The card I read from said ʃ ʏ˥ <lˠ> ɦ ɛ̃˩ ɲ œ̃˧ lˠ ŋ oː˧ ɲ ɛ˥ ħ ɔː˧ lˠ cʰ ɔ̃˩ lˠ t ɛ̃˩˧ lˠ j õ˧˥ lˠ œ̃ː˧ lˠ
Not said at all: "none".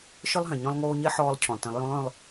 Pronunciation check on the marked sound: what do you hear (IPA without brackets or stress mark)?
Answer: lˠ